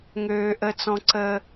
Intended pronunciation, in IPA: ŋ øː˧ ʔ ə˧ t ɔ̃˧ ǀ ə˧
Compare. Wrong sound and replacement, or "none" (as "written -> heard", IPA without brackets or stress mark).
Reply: t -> t͡s